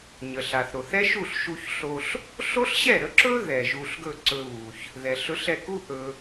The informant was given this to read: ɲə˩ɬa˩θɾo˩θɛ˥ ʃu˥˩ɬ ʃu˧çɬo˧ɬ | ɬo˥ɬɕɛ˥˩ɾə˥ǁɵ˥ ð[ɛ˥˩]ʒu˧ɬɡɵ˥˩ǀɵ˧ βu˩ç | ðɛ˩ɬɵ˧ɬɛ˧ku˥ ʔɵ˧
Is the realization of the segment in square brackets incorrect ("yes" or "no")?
yes